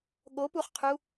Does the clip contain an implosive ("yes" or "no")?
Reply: yes